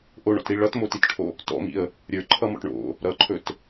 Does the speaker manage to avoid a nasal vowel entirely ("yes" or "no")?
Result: yes